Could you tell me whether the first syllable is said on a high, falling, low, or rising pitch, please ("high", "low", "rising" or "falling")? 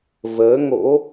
rising